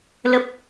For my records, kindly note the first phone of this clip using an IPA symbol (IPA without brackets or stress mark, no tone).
l